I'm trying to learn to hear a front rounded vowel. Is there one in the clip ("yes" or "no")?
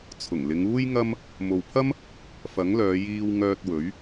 yes